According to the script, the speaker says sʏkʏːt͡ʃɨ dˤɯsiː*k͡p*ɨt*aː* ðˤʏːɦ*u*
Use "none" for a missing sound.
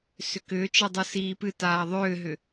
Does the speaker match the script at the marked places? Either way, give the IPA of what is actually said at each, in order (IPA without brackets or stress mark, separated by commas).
p, aː, ʏ